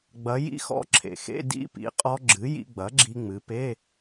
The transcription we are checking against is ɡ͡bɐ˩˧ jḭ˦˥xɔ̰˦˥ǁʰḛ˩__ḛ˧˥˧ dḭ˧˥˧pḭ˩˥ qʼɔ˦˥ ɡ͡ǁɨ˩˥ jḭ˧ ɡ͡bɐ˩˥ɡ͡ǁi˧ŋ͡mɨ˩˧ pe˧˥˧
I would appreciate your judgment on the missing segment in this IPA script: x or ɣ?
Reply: x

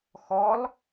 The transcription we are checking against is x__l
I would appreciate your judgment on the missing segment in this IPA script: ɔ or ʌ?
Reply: ɔ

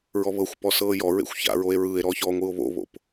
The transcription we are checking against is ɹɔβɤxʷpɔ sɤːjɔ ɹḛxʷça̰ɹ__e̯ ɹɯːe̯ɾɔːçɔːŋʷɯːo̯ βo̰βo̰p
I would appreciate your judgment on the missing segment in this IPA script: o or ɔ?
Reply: o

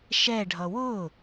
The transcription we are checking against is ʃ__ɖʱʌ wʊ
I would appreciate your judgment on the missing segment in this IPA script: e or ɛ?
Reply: ɛ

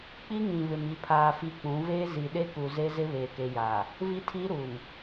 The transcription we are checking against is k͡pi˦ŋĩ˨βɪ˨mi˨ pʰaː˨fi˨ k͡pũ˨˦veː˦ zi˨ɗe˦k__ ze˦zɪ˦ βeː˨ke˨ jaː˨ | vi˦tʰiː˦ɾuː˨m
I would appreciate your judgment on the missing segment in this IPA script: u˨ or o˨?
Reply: u˨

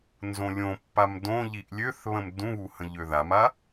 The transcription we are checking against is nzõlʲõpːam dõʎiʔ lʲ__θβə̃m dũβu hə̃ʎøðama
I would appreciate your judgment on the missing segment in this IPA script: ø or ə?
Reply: ø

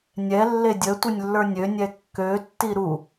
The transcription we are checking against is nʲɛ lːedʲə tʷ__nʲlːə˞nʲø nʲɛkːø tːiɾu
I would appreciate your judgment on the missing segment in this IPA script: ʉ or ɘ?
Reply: ɘ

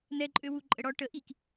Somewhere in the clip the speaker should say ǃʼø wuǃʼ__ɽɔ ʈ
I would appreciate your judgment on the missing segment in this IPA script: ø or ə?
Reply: ə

